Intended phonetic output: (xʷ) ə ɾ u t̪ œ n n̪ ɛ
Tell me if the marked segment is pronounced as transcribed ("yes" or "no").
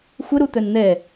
yes